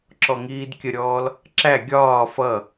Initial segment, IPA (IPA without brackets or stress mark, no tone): ǁ